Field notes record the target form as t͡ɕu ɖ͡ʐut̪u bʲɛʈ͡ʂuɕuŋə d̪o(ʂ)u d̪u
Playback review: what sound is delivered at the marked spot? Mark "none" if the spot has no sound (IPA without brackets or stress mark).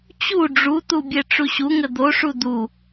ʂ